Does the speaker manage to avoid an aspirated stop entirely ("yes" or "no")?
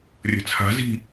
no